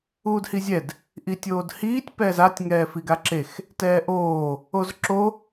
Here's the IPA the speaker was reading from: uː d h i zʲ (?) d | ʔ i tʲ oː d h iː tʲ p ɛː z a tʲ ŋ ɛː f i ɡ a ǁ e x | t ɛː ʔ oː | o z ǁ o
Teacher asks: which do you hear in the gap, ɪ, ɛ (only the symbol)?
ɛ